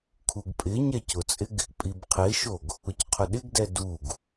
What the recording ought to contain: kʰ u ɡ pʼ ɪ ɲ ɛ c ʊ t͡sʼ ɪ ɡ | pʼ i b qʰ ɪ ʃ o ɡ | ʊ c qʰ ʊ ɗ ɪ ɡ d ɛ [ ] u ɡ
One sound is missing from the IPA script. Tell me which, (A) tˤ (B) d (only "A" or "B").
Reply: B